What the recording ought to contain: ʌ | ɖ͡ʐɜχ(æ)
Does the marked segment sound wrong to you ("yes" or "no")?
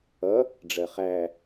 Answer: no